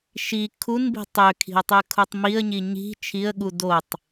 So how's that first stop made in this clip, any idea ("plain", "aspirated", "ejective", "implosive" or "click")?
aspirated